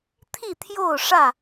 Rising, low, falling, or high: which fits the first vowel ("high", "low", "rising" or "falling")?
falling